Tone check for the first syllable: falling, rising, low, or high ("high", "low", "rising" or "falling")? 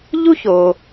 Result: high